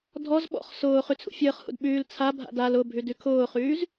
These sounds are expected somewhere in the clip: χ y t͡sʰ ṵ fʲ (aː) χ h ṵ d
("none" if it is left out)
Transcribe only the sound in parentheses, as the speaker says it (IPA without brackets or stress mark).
əː